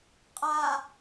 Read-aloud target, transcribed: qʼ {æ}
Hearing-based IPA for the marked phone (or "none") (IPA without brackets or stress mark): a